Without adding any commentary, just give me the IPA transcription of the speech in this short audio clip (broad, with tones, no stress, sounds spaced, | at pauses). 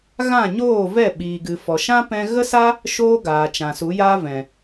ɣ ã˦˨ ɲ oː˦˨ v ɛ˦˨ ɓ iː˨ ɡ ɨ˨ f ɔ˨ ʃ ã˦ p ɛ̃˧ ɣ ə˦ s a˦ | ʃ oː˦ ɡ aː˨ t͡ʃ ã˨ s u˨˦ j aː˦ v ɛ̃˨